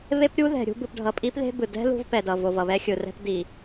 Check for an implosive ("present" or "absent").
absent